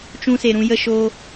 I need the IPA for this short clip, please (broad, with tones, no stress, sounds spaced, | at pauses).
t͡ʃ ũ˧ s e˨ ɾ ũ˧ j ə˧ ʃ oː˧